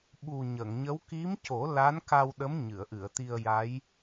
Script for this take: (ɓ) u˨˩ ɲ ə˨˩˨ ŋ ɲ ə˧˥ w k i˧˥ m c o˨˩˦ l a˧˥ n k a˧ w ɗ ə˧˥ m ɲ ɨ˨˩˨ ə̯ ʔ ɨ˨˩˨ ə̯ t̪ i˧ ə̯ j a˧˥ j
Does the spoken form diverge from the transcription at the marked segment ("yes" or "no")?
no